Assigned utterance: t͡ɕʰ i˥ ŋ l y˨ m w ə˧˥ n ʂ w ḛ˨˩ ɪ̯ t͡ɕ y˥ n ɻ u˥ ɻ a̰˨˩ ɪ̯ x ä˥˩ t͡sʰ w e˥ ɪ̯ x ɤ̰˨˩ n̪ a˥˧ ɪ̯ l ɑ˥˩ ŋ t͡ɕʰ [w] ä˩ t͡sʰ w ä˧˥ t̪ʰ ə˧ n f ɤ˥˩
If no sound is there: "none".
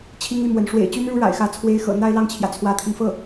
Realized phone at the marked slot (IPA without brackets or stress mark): j